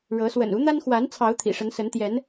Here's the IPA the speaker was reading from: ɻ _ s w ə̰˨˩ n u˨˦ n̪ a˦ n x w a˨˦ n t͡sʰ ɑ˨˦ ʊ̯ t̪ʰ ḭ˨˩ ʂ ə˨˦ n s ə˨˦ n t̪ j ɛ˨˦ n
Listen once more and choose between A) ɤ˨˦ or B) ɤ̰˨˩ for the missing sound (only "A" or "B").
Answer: A